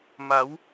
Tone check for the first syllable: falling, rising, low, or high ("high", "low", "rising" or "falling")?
rising